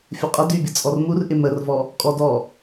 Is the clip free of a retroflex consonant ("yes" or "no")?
yes